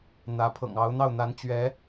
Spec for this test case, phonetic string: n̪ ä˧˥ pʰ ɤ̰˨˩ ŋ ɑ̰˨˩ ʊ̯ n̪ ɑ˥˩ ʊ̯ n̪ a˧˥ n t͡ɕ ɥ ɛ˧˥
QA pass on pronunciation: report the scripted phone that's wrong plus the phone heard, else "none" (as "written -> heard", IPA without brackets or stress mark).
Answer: ɑ̰˨˩ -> ɑ˧˥